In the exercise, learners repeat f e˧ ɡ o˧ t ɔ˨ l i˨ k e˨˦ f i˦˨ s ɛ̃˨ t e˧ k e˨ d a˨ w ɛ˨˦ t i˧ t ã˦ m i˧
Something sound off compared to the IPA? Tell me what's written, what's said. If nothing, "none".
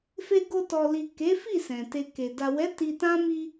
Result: none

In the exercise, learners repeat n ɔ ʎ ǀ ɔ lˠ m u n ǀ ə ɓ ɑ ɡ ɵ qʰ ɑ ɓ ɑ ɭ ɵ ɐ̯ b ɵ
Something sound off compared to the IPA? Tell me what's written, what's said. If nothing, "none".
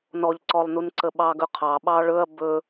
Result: m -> n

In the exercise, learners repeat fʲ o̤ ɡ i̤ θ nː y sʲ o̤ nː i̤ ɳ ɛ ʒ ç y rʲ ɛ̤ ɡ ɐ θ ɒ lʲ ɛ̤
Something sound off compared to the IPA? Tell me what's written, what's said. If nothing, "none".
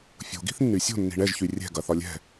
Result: none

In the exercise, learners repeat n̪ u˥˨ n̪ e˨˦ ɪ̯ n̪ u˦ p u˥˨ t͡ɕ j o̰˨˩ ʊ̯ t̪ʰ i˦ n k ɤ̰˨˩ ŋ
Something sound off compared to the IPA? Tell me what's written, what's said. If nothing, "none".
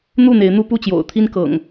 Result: none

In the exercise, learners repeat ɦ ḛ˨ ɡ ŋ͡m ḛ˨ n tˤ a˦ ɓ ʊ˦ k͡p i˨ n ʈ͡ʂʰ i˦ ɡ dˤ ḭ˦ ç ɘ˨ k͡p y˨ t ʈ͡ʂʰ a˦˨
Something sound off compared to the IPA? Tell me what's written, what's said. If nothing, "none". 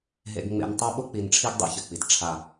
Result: y˨ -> i˨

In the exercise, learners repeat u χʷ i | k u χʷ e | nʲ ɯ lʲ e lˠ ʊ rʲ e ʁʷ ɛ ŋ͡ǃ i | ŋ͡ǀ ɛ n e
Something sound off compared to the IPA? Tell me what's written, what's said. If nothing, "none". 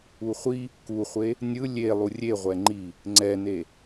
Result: ʊ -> u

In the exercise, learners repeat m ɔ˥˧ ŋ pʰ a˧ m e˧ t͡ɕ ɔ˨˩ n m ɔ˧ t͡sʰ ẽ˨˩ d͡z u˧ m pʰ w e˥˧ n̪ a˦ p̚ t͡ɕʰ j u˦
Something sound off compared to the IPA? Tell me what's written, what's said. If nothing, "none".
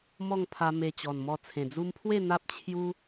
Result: none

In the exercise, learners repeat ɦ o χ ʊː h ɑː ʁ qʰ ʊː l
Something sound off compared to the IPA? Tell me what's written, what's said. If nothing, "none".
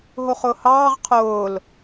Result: none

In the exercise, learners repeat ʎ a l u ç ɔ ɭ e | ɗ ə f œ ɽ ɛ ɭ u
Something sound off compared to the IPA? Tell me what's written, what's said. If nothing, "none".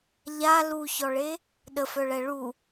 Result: ɽ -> ɭ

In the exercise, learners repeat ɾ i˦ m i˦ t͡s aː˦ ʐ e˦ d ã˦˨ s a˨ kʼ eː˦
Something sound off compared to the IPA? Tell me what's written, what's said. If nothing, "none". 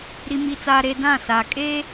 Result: ʐ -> ɾ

